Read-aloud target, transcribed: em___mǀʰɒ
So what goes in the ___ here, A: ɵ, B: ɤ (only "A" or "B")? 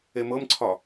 B